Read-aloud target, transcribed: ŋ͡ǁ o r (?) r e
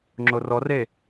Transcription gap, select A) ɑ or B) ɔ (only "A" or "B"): B